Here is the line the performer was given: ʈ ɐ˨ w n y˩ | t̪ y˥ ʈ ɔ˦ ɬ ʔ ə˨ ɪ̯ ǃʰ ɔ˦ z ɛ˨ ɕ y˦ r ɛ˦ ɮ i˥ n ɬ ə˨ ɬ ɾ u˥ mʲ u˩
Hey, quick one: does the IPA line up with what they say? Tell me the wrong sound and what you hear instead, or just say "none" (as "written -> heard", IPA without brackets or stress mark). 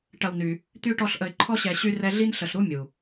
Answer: z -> ɕ